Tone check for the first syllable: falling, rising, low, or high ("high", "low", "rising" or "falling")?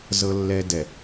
low